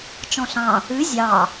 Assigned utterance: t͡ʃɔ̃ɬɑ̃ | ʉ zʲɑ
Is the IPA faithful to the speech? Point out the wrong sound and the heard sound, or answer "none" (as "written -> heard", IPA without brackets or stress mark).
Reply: none